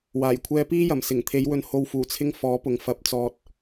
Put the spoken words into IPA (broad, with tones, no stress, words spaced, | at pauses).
waː˨˩jkʷʰɛː˧piː˥jɐ˨˩m sɪ˨˩ŋt̪ʰe˨˧jwɵ˨˧nho˨w fuː˨˩t͡sʰɪ˧ŋ fɔː˨˥pʊ˨ŋ fɐ˨p̚t͡sɔː˨t̚